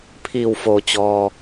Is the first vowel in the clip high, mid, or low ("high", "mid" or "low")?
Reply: high